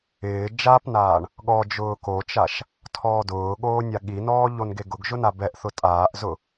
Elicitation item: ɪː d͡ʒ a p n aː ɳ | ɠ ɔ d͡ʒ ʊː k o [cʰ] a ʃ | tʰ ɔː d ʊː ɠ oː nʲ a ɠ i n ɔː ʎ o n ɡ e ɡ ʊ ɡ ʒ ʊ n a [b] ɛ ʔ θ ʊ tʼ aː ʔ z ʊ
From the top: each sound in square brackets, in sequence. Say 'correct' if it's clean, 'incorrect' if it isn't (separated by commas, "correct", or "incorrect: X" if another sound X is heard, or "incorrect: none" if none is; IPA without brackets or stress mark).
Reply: incorrect: t͡ʃ, correct